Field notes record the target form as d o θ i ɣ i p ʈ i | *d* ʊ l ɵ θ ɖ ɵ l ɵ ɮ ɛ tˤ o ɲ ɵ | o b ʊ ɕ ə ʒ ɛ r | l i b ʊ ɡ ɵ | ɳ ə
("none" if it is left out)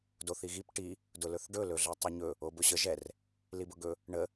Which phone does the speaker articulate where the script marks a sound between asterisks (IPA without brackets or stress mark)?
d